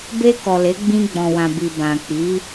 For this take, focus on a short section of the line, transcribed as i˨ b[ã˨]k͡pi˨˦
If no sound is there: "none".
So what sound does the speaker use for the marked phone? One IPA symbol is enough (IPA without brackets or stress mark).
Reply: ã˨